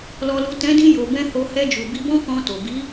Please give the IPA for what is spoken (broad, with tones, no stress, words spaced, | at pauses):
lɔ˨lu˨ tɛ̃˨˦dĩ˧ jo˨bɛ̃˧ ho˧ hɛ˧d͡ʒu˨ bi˧bɔ̃˦kɔ̃˧to˨ bi˨˦